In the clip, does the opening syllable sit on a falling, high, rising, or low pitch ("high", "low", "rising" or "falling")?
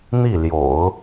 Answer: falling